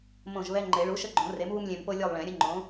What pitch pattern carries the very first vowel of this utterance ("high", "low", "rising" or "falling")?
falling